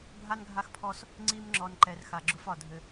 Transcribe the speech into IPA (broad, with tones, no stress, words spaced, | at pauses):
bʱa˦nɡʱa˦xpʰɔ˦s | ŋ͡ǀi˦mŋ͡ǁɔ˨nǃɛ˨r xa˨ɡ͡ǁʊ˦fɒ˨dʱɘ˦